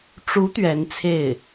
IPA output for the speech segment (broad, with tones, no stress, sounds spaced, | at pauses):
ʈ͡ʂ u˧˥ t̪ ɥ ɛ˧˥ n t͡sʰ e˥˩ ɪ̯